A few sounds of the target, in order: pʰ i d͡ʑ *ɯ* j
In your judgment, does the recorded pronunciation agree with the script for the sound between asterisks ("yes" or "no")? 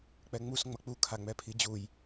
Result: no